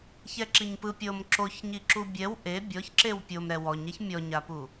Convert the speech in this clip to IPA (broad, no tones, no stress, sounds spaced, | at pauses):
ç ɛ ǁ i ɲ p ɯ pʲ ɤ m ǁ o ç ɲ i ǁ u bʲ ɛ w ʔ e bʲ ɔ ç ǁ e w pʲ o m ɾ ɛ w ɔ ɲ ɛ ç mʲ ɔ ɲ a p u